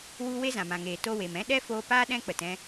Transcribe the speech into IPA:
w u˦ w e˦ z ã˨ m ã˨ ŋ eː˨ t o˧ w e˨ m ɛ̃˦ ɗ ɛ˦ f oː˧ p aː˦ ɗ ɛ̃˦ k͡p ə˨ t ɛ̃˧

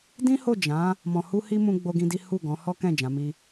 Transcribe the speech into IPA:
d ĩ˦ h o˦˨ d͡ʒ ã˨˦ | m ɔ̃˨ h u˧ h i˧ m ũ˦ ɡ͡b o˦ ɡ ĩ˦ d i˦ h u˦˨ ɡ ɔ̃˨˦ h ɔ˦ k ɛ̃˦˨ d͡ʒ ã˨˦ m i˦

